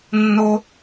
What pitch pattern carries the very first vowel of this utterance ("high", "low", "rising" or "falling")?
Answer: high